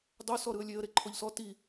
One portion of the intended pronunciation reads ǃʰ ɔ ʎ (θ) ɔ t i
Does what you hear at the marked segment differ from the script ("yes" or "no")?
yes